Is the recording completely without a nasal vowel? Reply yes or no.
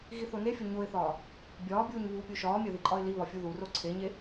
yes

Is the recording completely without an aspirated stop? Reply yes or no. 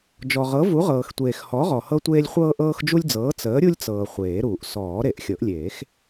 yes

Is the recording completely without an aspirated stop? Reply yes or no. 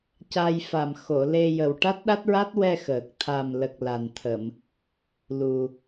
no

